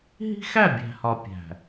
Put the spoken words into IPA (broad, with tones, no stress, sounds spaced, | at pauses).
ɦ i̤˦ x æ˦˨ bʲ æ̤˨ h ɒ˨ pʲ æ̤˨